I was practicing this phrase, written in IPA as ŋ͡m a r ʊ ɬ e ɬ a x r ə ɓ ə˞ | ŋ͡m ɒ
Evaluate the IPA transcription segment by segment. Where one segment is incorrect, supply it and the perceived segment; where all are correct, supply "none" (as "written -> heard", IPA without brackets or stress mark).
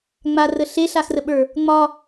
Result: ʊ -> ə